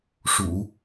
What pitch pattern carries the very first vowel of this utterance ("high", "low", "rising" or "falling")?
low